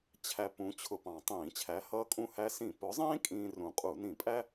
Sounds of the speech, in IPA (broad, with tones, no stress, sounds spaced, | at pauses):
t͡ɕʰ æ˧ p ũ˨˥ t͡ɕʰ ʊ˧ p ɑ̃˨˩ tˤ ĩː˧˩˧ t͡ɕʰ æ˨˥ h ʌː˧ kʼ ũ˧ h æ˧ s ĩ˧˩˧ p ʊ˨˥ zˤ ĩː˥ kʼ ĩː˧ r ũ˨˩ qʼ u˧˩˧ n ĩ˧˩˧ pʼ æ˥